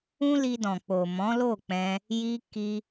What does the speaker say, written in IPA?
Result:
ũ˦li˧dɔ̃˨ k͡po˨mɔ̃˨˦lo˦˨k͡pɛ̃˧ | ji˧ ki˧

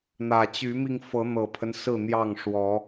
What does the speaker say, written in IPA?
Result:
n̪ä˨˩ t͡ɕy˨˦mi˧ŋ fɤ˨˦ n̪ɤ˨˩pʰə˦n sɹ̩˥˨n̪jɑ˥˨ŋʂwɔ˨˦

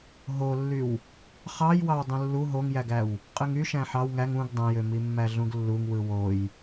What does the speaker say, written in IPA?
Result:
ɦolːyw | χɑjwɑw dˤũlːu ɦoŋjæɡæw | qʼɯŋy ʃæ̃ħɑw ŋæŋ ũɡ dˤæ̃jømimːæ ɮũɡlːuŋwɯ woj

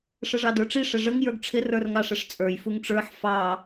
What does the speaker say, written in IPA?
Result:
ʂəʐɑdə˞ʈ͡ʂi ʂɪʐəŋ jə˞ɡʈ͡ʂʰɪ rə˞rŋɑʂəʂt͡sʼə˞j fuŋʈ͡ʂə˞ħ fɑ

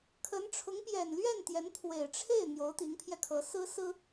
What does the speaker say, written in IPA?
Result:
kʰə˧˥nʈ͡ʂʰʊ˧˥ŋpjɛ˨˩nlɥɛ˥˩n t̪jɛ˧˥npʰwe˨˩ɪ̯ ʈ͡ʂʰe˥˩ɪ̯ n̪jo˧˥ʊ̯t̪i˧˥ŋpʰjɛ˧kʰɤ˧˥ sɹ̩˥ sɹ̩˥

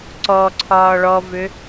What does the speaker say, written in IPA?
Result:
ǀɔǀʰɒː ɭɔvʏ

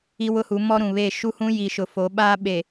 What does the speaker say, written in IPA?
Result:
i˦wʊ˦hu˨˦mɔ˦ ɾũ˨βe˦˨ ʃu˦hũ˦ji˨ʃʊ˨ fo˨˦ ɓa˦ ɓe˨

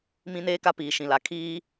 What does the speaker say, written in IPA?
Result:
mĩ˦neː˦ka˦piː˨ ʃĩ˨la˨ kʰiː˦

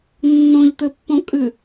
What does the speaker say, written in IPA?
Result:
nːõʎt̪ɘpːõkʼʉ

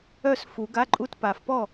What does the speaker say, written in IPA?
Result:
œ˥˧s fu˨˩˦ɡa˧˥˧ǃʼu˧˥t pa˨f pɔ˥˩

